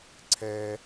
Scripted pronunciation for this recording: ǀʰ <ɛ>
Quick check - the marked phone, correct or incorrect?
correct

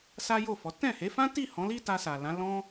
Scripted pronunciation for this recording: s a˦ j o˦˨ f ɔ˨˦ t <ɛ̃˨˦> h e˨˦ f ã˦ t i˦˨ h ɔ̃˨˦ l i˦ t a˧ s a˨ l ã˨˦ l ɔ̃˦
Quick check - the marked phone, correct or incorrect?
incorrect: ɛ̃˦˨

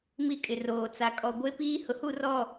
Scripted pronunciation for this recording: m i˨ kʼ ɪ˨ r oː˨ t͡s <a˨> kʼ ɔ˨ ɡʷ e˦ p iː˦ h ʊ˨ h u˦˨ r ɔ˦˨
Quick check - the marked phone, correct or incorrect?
correct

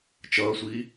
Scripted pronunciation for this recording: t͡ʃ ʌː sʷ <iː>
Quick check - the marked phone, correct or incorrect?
correct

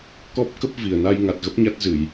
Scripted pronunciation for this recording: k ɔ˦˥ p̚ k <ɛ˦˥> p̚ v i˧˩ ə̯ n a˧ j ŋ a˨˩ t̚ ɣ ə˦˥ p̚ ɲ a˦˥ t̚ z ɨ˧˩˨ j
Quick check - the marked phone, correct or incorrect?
incorrect: ə˦˥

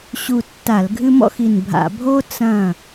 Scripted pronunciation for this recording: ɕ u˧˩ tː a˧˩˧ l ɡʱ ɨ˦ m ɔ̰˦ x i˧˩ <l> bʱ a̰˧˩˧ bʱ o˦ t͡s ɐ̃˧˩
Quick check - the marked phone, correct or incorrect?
incorrect: n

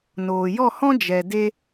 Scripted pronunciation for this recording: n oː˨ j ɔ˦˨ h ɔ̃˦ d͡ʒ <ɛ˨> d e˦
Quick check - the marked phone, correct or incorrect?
correct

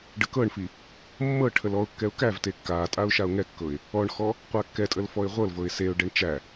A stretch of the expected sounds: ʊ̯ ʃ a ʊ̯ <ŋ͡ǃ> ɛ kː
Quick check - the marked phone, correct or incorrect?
incorrect: ŋ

